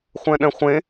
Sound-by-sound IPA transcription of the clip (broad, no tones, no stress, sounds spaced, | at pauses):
χʷ ɛ̃ ɗ ɛ̃ χʷ ẽ